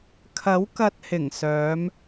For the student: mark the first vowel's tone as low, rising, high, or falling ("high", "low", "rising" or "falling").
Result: rising